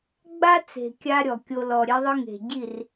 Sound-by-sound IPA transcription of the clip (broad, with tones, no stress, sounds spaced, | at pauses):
ɡ͡b a˦ t͡s e̤˨ kʲ a˧ ɾʲ ɔ˨ kʲ o˧ l ɔ˨ ɾʲ e˧ ðˤ ɯ˧ ŋ e̤˨ ɟ i˦˨ r